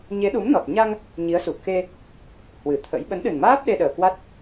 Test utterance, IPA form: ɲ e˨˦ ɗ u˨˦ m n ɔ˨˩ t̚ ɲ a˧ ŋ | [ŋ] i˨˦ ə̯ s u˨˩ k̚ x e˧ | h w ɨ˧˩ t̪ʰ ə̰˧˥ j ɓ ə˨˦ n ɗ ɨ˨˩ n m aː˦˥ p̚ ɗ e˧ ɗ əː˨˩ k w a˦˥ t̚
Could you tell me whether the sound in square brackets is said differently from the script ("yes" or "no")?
yes